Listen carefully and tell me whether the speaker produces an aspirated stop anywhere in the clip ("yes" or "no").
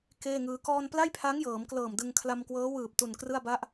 yes